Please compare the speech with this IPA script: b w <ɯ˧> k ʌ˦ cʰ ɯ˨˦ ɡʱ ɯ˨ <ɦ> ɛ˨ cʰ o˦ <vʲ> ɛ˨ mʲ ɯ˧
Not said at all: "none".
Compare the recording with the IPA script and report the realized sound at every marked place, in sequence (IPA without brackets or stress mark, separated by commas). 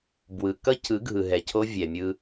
ɯ˨, ɦ, vʲ